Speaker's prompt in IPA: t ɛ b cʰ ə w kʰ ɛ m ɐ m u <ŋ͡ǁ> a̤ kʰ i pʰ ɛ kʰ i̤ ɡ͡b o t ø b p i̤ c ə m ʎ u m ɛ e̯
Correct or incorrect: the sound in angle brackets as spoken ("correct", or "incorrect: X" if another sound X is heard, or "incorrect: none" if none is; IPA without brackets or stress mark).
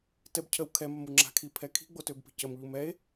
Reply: correct